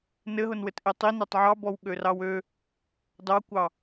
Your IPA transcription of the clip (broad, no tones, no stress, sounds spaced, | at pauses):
n ɘ ɦ ʊ n w ɘ t ʔ e tˤ i n e tˤ ʕ ɑ b ɔ w ɠ ø r ɑ w ø | d ɑ kʷ ɑ